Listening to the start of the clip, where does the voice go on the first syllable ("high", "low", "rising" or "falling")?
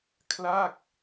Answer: falling